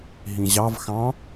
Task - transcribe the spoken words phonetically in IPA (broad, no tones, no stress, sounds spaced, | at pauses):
ɦ ĩ ʑ ɑ v x ɑ̃